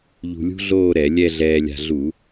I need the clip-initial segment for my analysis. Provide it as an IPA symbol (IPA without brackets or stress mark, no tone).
ʎ